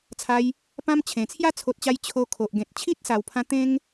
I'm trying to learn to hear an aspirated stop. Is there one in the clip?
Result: yes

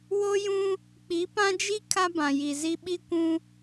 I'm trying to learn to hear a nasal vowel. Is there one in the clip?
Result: yes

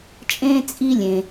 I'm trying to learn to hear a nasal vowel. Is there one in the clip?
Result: yes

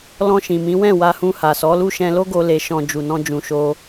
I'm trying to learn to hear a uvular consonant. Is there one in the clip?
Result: no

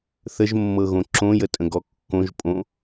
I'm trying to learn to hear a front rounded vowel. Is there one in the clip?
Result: no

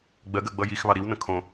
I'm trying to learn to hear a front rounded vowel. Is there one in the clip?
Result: no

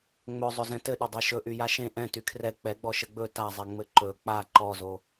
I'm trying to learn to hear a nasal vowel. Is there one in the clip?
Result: yes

